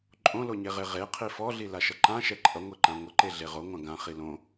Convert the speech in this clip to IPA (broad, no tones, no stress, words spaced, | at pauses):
ǃʼõloɲeʁe ʁeqʰi fɔɮi laʃʌǃãʃɛ ǃʼʌŋʷeǃã ŋʷʌǃeɮe ʁoŋʷã ɡãχi lõ